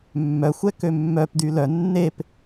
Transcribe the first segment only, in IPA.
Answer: mː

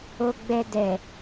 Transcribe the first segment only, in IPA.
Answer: o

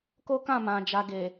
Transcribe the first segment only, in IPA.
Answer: k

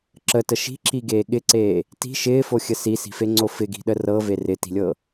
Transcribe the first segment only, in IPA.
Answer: ǁ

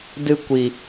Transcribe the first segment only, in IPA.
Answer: d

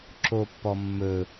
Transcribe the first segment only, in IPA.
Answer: ǁ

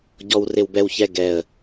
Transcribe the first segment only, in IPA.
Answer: ɟ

